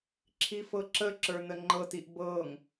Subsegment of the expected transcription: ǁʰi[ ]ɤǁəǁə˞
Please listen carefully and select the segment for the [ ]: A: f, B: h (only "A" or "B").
A